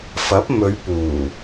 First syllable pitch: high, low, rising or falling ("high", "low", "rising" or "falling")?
rising